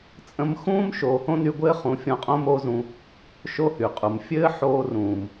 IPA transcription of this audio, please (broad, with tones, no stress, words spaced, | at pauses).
t͡sʼə̃˧mxũː˦m ʃoː˨hõ˦ny˧ɡʷɘː˦ χũ˨˦fʲɔ̃˧qʼõ˦ mo˦zũ˧ | ʃo˦hy˨qʼu˨m fʲɘː˦ħoː˧ rũː˨m